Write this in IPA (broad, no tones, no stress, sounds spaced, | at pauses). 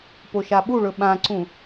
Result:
p o ʃ a ɓ u ɭ ɵ ɓ ã ǀ ũ